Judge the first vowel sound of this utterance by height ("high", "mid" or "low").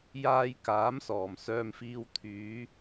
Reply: low